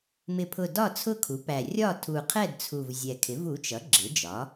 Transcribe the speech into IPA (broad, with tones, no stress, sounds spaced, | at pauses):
m ɪ˨˩ pʰ ʊ˨˩ d ɒ˥˨ t͡sʰ ʊ˥˨ kʰ u˩˥ p æ˨˩ rʲ ɒ˥˨ tʰ u˨˩ qʰ ɛ˥˨ d t͡sʰ u˨˩ v zʲ ɛ˨˩ kʰ ɪ˩˥ v u˩˥ t͡ʃ ʌ˩˥ ɡ͡ǁ ɪ˩˥ d͡ʒ ɒ˩˥